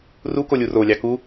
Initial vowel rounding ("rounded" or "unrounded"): rounded